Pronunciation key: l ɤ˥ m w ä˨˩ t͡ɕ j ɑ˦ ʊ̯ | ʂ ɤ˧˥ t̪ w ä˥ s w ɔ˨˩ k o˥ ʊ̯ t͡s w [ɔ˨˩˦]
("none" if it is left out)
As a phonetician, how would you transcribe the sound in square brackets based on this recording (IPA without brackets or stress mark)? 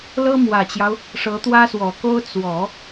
ɔ˨˩˦